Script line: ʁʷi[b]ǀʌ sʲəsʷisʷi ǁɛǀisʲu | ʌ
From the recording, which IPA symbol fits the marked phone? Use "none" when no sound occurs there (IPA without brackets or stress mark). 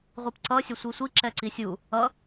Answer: p